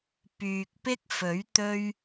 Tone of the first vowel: low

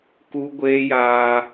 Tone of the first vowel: high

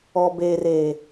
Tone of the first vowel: low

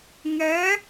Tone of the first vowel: rising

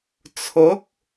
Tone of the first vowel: rising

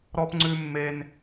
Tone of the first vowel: high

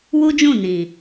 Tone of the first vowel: high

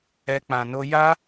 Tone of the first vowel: high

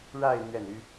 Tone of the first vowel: falling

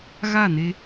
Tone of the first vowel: falling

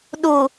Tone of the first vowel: low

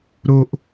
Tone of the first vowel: low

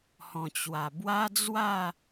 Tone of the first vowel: low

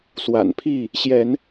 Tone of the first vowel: low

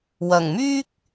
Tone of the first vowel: low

